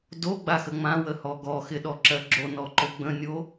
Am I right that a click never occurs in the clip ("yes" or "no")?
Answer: no